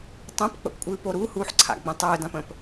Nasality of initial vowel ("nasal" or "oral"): nasal